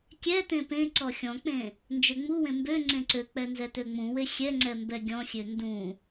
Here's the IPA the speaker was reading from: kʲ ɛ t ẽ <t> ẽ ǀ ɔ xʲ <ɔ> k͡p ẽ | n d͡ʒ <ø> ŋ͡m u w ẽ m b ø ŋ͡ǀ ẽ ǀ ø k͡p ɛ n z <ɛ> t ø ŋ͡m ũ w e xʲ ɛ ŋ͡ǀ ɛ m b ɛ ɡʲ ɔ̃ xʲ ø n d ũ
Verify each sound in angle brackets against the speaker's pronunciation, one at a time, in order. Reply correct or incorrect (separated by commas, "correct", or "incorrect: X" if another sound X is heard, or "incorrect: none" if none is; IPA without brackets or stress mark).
incorrect: p, incorrect: ɔ̃, correct, correct